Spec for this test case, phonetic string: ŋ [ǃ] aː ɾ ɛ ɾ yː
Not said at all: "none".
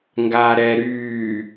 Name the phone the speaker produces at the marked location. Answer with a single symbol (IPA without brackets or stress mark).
ɡ